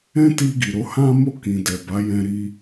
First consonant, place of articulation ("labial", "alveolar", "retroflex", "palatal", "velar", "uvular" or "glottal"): alveolar